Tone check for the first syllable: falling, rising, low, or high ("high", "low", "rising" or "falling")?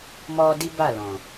high